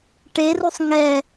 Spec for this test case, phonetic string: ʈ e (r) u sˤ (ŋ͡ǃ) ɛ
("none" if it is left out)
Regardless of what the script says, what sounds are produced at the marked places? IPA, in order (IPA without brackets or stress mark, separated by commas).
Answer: r, ŋ